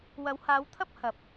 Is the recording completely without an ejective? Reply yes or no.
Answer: yes